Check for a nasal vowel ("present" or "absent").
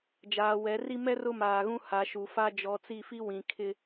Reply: present